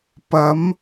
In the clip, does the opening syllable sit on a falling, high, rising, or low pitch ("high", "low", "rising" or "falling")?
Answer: rising